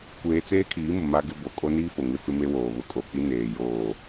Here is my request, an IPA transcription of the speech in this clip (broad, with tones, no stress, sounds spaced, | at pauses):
kʷ eː˦ t͡s eː˦ kʰ iː˨˦ m ʊ˨ m a˦ ɡ ɪ˦ b o˨ kʼ o˦ n iː˦ f o˨ ŋ ɪ˦ f ɪ˦ m e˦ w oː˨ β ʊ˨ kʼ o˨ k͡p i˦ n eː˨ j oː˦˨